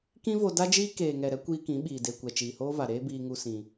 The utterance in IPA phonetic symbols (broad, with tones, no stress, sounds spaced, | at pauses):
k ĩ˦ v o˧ d a˦ d͡ʒ iː˦ k eː˨ ŋ ɛ˨ ɾ ɛ˧ kʷ iː˧ k ĩ˨˦ ɓ iː˨ d e˨ kʷ ɛ˨ t͡ʃ iː˨ h oː˦ v a˨ ɾ eː˦ b iː˧ ŋ u˧ s ĩ˧